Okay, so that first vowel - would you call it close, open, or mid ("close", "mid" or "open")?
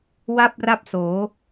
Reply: open